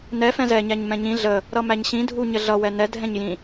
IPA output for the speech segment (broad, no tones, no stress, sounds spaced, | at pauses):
n ɛ f ɛ̃ z ɛ ɲ æ ɲ m ɛ̃ ɲ ĩ ɮ ə | ɾ ʌ m æ ɲ ɕ ĩ dʱ u ɲ ə ɮ ʌ w ɛ n ɛ dʱ ɛ̃ ɲ j ĩ